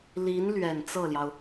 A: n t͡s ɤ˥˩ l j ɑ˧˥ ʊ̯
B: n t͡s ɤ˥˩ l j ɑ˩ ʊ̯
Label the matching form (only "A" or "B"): B